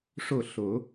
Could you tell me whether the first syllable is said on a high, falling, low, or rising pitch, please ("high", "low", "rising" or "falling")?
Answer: falling